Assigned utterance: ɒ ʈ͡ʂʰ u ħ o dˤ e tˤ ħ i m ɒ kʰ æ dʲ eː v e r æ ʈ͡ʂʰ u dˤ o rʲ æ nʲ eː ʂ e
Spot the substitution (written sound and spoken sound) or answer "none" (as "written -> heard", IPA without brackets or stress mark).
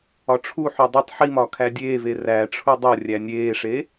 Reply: none